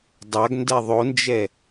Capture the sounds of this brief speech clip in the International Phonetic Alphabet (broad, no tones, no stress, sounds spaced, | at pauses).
dˤ a ɡ n d ɛ ðˤ o n d͡ʒ ɛ